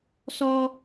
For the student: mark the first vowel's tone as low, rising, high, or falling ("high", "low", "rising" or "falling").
high